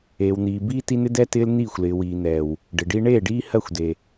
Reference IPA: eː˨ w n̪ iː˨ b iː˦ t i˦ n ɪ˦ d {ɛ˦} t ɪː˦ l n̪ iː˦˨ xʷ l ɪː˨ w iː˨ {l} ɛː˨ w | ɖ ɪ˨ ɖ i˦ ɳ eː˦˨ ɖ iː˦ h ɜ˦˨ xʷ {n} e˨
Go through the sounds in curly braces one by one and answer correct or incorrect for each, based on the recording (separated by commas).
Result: correct, incorrect, incorrect